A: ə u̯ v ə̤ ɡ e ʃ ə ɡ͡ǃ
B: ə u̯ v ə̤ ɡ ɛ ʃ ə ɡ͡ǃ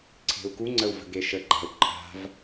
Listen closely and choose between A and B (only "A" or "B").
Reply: A